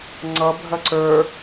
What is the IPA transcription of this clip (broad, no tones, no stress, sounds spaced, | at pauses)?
ŋ͡ǀ ʌ bʱ ɐ ǀ ə˞